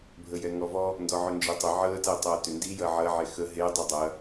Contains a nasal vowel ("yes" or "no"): no